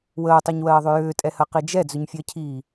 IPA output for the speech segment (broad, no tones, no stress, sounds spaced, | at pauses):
w əː tˤ ɜ ɲ w ɜː ðˤ ʏ j ʏː tʼ ɛ h ɜ q i d͡ʒ ɛ d͡z ʏ ɲ fʲ ɜ cʰ iː